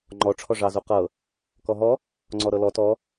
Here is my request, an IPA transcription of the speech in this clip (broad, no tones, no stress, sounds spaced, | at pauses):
ŋ͡ǃ ɔ ʈ͡ʂʰ ɔ ʐ ɑ z u q ɤ | k ɔ ɦ ɔ | ŋ͡ǀ ɔ ɾ ɤ l ɔ t ɔ